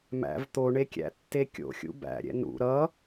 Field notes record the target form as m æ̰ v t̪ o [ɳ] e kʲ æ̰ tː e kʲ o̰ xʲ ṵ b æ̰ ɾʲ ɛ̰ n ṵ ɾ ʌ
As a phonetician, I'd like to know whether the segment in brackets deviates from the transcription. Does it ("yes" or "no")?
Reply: no